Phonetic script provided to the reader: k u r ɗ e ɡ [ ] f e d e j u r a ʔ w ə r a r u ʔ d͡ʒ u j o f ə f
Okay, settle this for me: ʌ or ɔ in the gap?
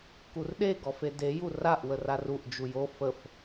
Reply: ɔ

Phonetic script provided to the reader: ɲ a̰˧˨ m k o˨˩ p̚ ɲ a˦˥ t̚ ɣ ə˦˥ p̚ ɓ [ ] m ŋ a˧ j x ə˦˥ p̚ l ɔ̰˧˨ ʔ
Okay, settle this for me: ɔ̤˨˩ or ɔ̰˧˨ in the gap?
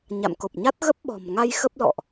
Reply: ɔ̤˨˩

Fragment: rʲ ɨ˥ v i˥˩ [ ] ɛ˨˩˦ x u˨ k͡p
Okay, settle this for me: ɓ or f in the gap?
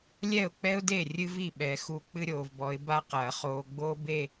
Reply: ɓ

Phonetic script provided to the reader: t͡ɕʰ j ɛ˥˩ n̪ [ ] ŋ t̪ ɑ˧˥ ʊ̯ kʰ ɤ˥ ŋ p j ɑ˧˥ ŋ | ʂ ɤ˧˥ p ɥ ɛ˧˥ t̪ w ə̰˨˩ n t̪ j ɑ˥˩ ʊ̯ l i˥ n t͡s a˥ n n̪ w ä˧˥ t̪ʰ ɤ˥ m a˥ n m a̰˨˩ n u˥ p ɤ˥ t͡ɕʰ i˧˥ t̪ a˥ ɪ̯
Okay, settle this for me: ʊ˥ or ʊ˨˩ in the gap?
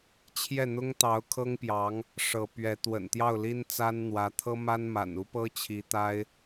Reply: ʊ˥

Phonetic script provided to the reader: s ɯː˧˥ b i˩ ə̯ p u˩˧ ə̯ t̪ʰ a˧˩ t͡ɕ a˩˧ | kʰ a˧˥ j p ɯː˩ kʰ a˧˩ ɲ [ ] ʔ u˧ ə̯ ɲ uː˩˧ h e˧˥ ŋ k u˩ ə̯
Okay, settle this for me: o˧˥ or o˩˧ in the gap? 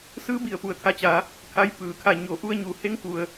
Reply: o˩˧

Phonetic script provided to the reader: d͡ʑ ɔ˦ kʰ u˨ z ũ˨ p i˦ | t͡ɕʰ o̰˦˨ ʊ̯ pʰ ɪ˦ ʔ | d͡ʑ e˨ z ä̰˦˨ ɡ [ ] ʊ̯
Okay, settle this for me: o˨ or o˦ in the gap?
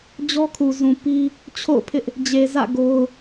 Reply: o˦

